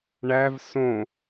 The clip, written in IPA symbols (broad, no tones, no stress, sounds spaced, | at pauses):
ɳ æ v s õ